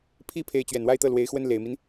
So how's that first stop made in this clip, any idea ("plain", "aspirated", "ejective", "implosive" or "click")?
aspirated